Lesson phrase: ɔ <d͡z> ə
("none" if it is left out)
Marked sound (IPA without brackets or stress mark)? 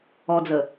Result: d͡z